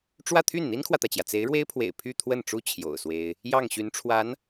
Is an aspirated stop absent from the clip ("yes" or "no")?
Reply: no